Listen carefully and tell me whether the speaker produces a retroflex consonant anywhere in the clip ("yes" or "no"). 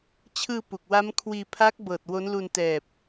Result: no